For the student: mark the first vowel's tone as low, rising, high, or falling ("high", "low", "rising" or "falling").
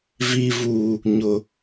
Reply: low